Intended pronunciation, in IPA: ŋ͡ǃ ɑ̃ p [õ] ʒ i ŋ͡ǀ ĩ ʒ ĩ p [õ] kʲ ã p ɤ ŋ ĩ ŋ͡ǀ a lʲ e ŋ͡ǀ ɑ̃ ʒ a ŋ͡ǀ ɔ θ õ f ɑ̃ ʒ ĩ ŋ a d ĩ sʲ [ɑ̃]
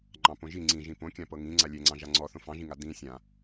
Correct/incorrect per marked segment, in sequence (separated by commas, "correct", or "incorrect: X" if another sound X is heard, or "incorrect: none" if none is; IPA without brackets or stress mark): correct, correct, incorrect: ã